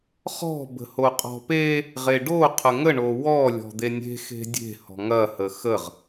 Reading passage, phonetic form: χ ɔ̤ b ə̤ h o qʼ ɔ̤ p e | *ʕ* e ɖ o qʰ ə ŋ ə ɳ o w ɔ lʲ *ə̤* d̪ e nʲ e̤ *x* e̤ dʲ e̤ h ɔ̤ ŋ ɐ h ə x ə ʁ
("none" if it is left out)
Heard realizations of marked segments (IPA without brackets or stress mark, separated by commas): ʁ, ɔ̤, x